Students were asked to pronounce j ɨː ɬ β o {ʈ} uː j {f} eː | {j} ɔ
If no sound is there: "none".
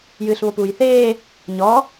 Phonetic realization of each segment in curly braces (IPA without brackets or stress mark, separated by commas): p, θ, ɲ